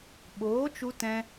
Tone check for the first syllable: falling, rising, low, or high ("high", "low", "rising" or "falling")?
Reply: rising